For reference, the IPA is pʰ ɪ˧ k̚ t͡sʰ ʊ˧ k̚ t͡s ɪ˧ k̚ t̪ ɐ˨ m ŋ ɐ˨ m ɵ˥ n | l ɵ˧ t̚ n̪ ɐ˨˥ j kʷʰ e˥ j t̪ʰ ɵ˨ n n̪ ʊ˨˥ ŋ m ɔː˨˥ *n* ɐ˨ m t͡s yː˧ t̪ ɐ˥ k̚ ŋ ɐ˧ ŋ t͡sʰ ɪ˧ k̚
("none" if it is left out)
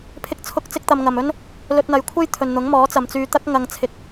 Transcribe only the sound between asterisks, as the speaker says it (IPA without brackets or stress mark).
t͡s